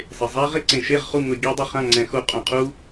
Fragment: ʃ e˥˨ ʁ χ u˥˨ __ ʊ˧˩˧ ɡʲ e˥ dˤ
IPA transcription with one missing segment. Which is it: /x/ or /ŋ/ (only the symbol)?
ŋ